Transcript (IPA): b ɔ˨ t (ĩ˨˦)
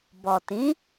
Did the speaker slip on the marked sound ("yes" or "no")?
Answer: no